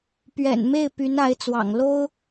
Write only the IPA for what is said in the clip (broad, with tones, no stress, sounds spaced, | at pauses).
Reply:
p ɥ ɛ̰˨˩ n m e˥˩ ɪ̯ p y˧˥ n a˧˥ ɪ̯ t͡s w ɑ̰˨˩ ŋ l o˥ ʊ̯